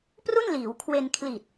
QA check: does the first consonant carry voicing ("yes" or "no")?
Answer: no